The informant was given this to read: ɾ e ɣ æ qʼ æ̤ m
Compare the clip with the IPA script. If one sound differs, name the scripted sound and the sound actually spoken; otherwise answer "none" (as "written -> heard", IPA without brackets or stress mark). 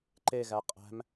ɾ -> ǃ